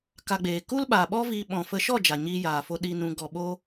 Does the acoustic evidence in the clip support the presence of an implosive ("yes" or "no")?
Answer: yes